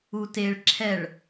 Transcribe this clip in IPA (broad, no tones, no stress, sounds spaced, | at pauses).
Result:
u t e ɭ ǁʰ ɛ ɭ